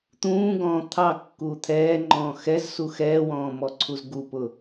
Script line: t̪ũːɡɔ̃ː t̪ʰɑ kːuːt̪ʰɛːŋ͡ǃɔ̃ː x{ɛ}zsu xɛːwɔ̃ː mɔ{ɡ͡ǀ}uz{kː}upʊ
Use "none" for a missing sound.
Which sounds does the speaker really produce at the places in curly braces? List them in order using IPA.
ɛ, ǀʰ, ɡ

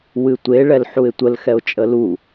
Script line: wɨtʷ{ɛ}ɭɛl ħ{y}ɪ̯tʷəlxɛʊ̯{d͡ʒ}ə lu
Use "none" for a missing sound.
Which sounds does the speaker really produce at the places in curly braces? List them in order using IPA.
e, u, t͡ʃʼ

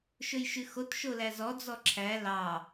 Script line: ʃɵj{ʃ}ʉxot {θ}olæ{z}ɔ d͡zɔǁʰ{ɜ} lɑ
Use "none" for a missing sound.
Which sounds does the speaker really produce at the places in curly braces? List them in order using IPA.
ʃ, ʃ, z, æ

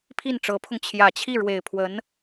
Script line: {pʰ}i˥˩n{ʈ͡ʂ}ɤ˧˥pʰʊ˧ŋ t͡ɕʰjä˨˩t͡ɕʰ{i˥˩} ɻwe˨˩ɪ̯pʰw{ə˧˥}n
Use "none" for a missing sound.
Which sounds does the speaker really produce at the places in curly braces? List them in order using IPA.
pʰ, ʈ͡ʂ, i˥˩, ə˧˥

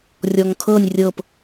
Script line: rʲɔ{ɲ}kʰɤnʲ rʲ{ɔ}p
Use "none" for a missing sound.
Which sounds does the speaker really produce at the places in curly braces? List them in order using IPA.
ŋ, ɤ

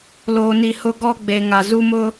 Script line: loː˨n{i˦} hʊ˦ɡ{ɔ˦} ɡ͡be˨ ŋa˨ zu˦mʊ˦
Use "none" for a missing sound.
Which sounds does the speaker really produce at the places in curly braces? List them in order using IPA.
i˨, ɔ˦

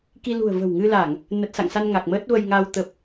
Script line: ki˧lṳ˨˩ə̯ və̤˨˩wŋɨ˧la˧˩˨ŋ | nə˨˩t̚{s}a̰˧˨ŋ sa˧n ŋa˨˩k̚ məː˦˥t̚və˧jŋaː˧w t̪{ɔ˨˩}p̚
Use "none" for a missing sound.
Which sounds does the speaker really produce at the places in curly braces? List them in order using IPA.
s, ə˨˩

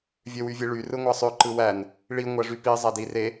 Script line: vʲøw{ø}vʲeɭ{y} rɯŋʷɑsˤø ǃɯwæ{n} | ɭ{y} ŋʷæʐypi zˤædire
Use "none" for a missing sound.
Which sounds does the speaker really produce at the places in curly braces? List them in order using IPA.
y, y, n, i

